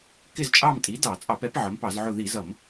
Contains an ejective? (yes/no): yes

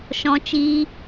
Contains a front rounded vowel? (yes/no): no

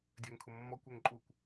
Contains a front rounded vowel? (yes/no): yes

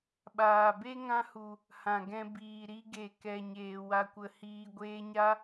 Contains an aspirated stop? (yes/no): no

